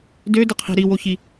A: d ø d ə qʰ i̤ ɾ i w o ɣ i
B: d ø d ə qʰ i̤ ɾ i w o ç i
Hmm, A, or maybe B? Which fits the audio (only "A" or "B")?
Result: B